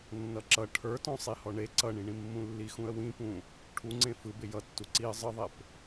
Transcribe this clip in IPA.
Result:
nː ʌ ǁ ʌ ʈʰ ə˞ t ɔ̃ sˤ i h ɔ ɳ e ǀ ʌ ɳ ĩ ɳ ĩ mː ũ lː i x ũ ə̯ w ĩ p ũ | ʈʰ u ŋ͡ǀ ẽ f ɯ b ɪ j ʌ tː u ǀ i ə̯ zˤ ɯ ðˤ e p

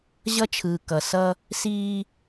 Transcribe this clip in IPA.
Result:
ʑ ʌ˦ t͡ʃʰ ɯː˨ k ʌ˨ s ʌ˦ | s iː˦

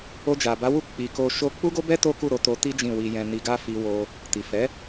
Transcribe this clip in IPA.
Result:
o˧ d͡ʒ a˨ b a˨˦ w u˦˨ k͡p i˨ k o˧ ʃ o˦ k͡p u˦ ɡ o˦ b ɛ˦ t o˦ k u˦˨ ɾ o˨˦ t o˧ t i˦ d͡ʒ ĩ˦˨ w i˧ j ɛ̃˧ n i˧ ɡ a˦ f i˦ w o˦ | t i˨ f ɛ˨˦

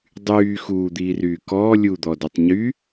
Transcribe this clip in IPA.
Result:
dˤ yː x uː d̪ iː r yː k ɔː lʲ u d̪ ɔ d ɵ tˤ ɲ y

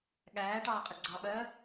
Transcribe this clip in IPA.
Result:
ɠ æː ʈ ɑː qʼ ə ɡ͡ǀ ɑ ɓ ɜː

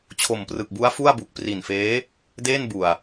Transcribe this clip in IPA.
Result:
t͡ɕʰ o˨˩ m p r ɯ˨˩ k̚ b u˦˥ a̯ f u˥˩ a̯ b u˨˩ k̚ p r i˨˩ n f eː˦˥ | d eː˥˩ n b u˨˩ a̯

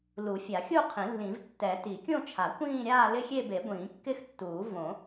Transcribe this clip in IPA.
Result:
l u˨˩˦ fʲ a˨˩˦ xʲ u˥˧ qʰ ĩ˨˩˦ lː ĩ˨˩˦ v tː ɛ˨˩˦ t i˨˩˦ kʲ õ˥˧ t͡ʃʰ a˨˩˦ kʷ ĩː˥˧ ɾʲ aː˥˧ l ɪ˥˧ xʲ e˥˧ b e˨˩˦ ɡʷ ĩː˨˩˦ kː ɪ˥˧ x tː uː˨˩˦ v õ˨˩˦

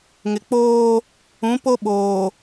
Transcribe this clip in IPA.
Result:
ŋ ɪ˨ k͡p oː˦ | ũ˨˦ p o˦ ɓ oː˨

